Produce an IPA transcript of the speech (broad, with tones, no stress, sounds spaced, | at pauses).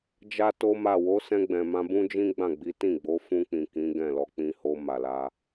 d͡ʒ a˦ t o˦ m a˦˨ w o˨˦ s ɛ̃˧ ɡ͡b ɛ̃˨ m ã˧ b ũ˦ d͡ʒ ĩ˦ ɡ͡b ã˦˨ ɡ͡b i˨˦ t ĩ˦˨ ɡ͡b o˨˦ f ũ˧ k͡p ĩ˨ k ĩ˨˦ ɡ ɛ̃˦˨ l ɔ˧ k͡p ĩ˧ h o˧ m a˨ l a˧